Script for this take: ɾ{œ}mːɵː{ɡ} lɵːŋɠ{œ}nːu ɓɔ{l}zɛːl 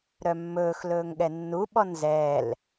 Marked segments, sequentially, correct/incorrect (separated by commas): correct, incorrect, incorrect, incorrect